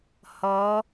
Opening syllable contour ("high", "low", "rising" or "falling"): rising